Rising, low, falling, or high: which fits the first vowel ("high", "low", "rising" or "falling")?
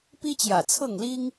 high